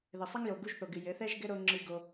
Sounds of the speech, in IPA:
ðɘ˨sˤɘ˦ŋ jo˨ɡu˧ʒθo˨ɡɨ˨ jɘ˨˦θɛ˦ʒɡɘ˦ ɾo˧ ŋ͡ǁɨ˧ɡo˧

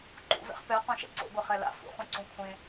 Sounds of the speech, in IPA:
ǃṵvɛ̰χ pɛ qõʃɛ̰ǀo̰ ɡʷɛχɛla̰ fṵχũǀũ kʷʰẽ

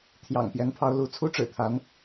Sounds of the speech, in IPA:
t̪ʰjɑ̰˨˩ŋpjɛ˧˥npʰɑ˧˥ʊ̯ lu˧˥ t͡sʰu˥ ʈ͡ʂɻ̩˨˩t̪ʰa˧˥n

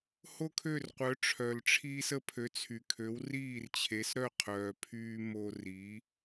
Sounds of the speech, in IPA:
ho˥kʰø˥˩rqʷœ˩˥ ʈ͡ʂʰœ˩lʈ͡ʂʰiː˧s ə˧pʰø˩˥t͡sʰy˩ kʰø˩˥wriː˥˩rt͡ɕʰe˩˥sɾœ˥˩ qʰœː˩pʰyː˧ mo˧ri˩˥

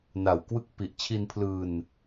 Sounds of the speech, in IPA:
na˨˩wkwɯ˥˩k̚ pi˨˩ʔ t͡ɕʰi˧npʰlɯː˧n

